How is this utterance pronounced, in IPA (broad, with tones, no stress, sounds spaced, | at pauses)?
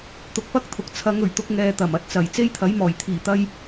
t̪ ʊ˧ k̚ p ɐ˥ k̚ t̪ʰ ʊ˨˥ k̚ t͡sʰ ɐ˨˧ ŋ ɵ˨˩ ɥ t̪ ʊ˧ k̚ ŋ ɛː˨ t̪ ɐ˨˩ m ɐ˨˥ t̚ t͡s ɐ˨˩ j t͡s e˥ j t̪ʰ ɐ˨˥ j m ɔː˨˩ j t̪ʰ iː˨˩ t̪ ɐ˧ j